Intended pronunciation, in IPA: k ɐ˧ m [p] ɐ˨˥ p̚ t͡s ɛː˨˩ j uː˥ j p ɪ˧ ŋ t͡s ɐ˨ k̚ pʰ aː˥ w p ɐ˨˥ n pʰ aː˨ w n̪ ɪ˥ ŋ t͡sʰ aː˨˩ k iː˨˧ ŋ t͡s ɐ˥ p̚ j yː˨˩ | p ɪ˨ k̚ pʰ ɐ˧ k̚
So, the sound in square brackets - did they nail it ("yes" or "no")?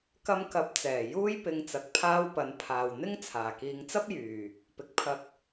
no